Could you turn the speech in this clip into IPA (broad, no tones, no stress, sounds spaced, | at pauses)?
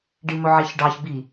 ɖ i m ɵ ʕ e ç ɖ ɑ ç b i